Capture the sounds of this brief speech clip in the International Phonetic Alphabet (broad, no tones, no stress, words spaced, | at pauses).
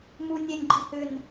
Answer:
mu nʲenʲɡ͡ǃi hʏn